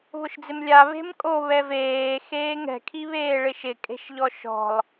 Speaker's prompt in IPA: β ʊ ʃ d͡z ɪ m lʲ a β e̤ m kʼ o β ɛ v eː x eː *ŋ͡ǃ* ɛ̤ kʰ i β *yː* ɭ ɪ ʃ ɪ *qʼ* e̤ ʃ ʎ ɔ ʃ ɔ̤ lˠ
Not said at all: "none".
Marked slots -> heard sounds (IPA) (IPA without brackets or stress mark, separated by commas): ŋ, eː, kʼ